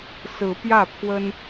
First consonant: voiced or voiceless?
voiceless